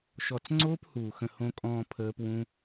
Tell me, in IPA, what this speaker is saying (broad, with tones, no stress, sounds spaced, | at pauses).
ʃ ɔ˨ t͡s ŋ͡ǀ oː˦ p h uː˨ x ə̃˧ h õ˧ kʼ ɔ̃ː˧ pʰ əː˦ p w ũ˦